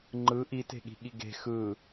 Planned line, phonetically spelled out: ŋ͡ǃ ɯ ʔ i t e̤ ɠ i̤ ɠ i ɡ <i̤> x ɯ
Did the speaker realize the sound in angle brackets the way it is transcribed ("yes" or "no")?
no